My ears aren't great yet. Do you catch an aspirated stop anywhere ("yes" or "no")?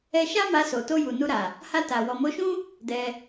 no